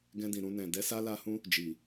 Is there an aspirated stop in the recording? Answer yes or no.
no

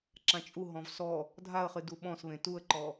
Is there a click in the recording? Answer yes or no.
yes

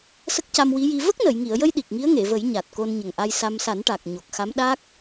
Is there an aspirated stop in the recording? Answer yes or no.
no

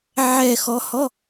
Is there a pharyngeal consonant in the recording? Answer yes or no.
yes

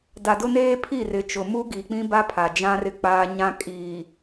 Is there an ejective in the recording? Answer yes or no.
yes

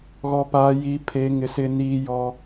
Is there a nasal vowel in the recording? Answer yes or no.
no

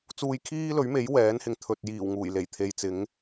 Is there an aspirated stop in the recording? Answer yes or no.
yes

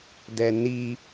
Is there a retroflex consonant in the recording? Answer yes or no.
no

